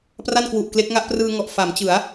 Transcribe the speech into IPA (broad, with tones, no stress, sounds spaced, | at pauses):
p r a˥˩ n k w u˨˩ ʔ k l e˦˥ k̚ ŋ a˦˥ ʔ p r ɯː˧ ŋ ɔ˨˩ ʔ f a˩˦ m t͡ɕ ɯ˩˦ a̯